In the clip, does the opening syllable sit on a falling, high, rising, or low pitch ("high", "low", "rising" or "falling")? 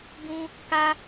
high